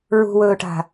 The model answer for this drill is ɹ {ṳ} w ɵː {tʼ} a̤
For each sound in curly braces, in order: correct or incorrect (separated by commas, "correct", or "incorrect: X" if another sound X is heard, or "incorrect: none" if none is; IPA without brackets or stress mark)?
correct, incorrect: ʈ